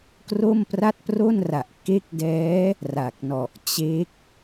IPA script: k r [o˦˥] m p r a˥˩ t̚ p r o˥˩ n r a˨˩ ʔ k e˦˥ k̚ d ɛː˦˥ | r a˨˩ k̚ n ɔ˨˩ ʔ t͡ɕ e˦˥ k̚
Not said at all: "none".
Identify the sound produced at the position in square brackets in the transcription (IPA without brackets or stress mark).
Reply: o˥˩